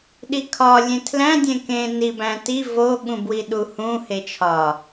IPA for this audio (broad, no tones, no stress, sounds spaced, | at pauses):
ɗ i kʰ ɒ lʲ ẽ tʰ l æ̃ dʲ ẽ k ẽ n i b æ̃ t i v o ɠ ũ b w i ɗ u h ũ h e t͡ʃʰ ɒ